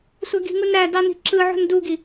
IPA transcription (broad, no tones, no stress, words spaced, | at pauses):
sʷæɡi̤ŋunɾæ dɑni̤ǁɯ ʕo̤nduɡi